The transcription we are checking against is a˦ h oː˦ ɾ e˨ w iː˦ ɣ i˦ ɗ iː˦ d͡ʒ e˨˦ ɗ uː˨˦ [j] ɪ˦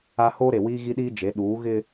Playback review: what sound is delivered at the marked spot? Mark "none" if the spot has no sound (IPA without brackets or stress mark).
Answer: ɣ